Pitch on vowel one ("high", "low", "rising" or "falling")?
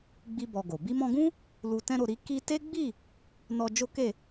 high